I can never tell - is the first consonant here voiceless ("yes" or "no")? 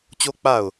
yes